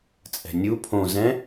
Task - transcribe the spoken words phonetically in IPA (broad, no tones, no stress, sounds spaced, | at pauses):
t͡sʼ ɛ̤ nʲ u pʰ õ z ɛ̃